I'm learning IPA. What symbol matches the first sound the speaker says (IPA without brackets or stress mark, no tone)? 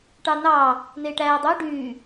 ʈ